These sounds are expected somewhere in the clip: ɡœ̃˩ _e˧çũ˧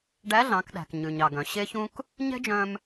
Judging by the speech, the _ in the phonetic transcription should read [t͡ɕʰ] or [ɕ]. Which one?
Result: ɕ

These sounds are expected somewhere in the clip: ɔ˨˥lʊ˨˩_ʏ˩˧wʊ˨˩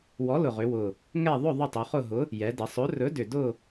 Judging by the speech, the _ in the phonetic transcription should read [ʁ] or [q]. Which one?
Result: ʁ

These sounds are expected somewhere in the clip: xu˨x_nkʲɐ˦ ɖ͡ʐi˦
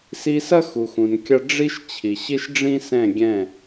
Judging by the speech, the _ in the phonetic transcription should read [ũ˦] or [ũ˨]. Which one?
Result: ũ˨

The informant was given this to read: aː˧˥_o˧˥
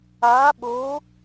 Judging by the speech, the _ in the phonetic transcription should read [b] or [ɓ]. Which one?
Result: ɓ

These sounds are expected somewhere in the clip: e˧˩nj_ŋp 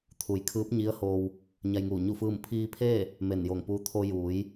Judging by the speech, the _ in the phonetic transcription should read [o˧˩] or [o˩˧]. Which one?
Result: o˧˩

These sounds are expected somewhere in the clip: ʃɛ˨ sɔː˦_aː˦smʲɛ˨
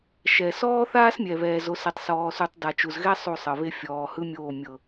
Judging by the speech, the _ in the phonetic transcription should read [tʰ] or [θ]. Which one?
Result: θ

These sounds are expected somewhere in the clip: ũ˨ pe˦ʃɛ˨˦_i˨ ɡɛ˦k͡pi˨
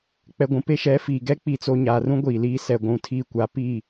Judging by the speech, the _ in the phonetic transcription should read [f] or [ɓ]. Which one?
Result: f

